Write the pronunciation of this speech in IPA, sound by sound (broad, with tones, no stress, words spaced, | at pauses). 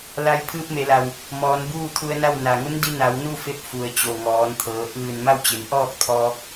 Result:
la˧jpʰɯː˧p̚me˩˧la˩w | mɔː˩˧nbuː˥˨t̪ʰu˧ə̯na˥˨w na˩ŋu˧˥ndi˧na˩˧w nu˥˨fe˧p̚ fu˩ə̯t͡ɕo˩ŋɔː˩˧n t̪ʰɤː˩˧ ʔɯː˧˩nma˥˨wt͡ɕe˩˧nʔɔː˥˨k̚ t̪ʰɔː˧k̚